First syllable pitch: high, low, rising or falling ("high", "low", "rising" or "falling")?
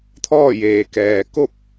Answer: falling